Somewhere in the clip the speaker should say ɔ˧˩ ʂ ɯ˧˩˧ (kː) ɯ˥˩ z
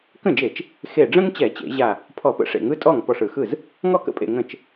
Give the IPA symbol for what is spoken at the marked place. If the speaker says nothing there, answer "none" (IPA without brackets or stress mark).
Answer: x